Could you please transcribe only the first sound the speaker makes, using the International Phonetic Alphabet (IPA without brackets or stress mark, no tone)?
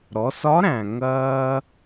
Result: ɾ